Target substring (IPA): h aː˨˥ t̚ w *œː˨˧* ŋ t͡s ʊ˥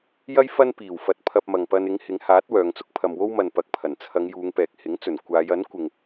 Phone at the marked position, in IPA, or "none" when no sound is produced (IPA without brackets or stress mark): œː˨˧